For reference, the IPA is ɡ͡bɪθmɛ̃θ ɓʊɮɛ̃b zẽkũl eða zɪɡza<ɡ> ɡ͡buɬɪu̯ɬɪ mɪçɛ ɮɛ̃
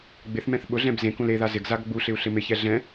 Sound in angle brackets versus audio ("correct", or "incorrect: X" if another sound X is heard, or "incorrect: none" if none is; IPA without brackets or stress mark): correct